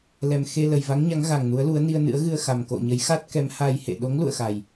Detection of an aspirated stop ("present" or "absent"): absent